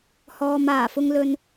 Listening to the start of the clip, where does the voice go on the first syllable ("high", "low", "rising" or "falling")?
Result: low